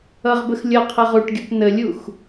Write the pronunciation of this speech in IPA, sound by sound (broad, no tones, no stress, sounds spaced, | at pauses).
ʌ ʁ b ə x lʲ ʌ qʰ ʌ ʁ u ʈ ɡʲ u p n ə lʲ u x